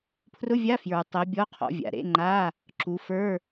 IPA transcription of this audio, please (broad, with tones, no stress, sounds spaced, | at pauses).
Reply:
pʰ r ʊ˧˥˧ vʲ a˧˥˧ f j ə˞˨ tˤ ɛ˨˦ bʲ ɔ˧˥˧ qʰ ɔ̰˨˦ vʲ a̰˨ ɾ ḛ˧˥˧ ŋ͡ǃ a˧˥˧ | ǁ u˨˦ f ə˞˧˥˧